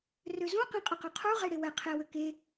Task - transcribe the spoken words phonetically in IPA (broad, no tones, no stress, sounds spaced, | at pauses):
r ø z ũ q ẽ qʼ ə q ə˞ qʰ u ʁ e ɽ e w ɛ qʰ e w ø k e